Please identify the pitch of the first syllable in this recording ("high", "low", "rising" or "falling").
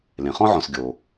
low